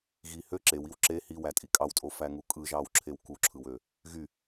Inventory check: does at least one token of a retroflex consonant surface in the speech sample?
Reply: no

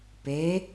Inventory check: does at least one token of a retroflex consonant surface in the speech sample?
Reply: no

